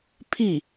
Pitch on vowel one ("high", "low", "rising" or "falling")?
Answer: falling